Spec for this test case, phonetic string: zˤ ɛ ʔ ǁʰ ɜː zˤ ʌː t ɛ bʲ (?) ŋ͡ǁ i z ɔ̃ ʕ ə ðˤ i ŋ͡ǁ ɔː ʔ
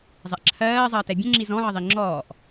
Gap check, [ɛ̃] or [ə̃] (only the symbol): ə̃